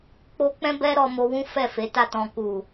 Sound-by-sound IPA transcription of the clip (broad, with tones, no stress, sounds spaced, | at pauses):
k͡p o˧ k͡p ɛ̃˦ b ɛ˦ ɾ ɔ˧ m o˧ w ũ˦ f ɛ˦˨ f e˨˦ t a˦˨ t ɔ̃˨ k u˨